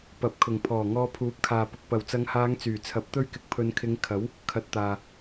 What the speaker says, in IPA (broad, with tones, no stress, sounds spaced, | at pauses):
p ɐ˨ p̚ kʰ ʊ˨˩ ŋ pʰ ɔː˨˩ ŋ ɔː˧ pʰ uː˨˥ p̚ kʰ aː˨ p ʊ˨ k̚ p ɐ˨˩ w t͡s ɐ˨˧ ŋ h aː˨˧ ŋ t͡s yː˨˩ t͡sʰ ɐ˨˥ p̚ t̪ ɵ˥ ɥ k ɪ˨˥ k̚ pʰ ɵ˨˧ n kʰ ɪ˨˧ ŋ kʰ ɐ˨˥ w | kʰ ɐ˨ t̚ t̪ aː˨